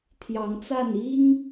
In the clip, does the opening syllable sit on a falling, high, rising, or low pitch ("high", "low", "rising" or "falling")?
rising